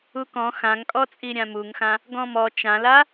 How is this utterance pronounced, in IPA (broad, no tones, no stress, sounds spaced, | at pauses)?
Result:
u k ɔ̃ x ã ŋ kʼ ɔ t͡sʼ i ɾʲ ã m u ŋ x ã | ɡ ɔ̃ m ɔ t͡ʃ ã l a